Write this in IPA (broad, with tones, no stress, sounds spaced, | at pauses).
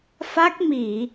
f a˦˥ k̚ m i˧˩˨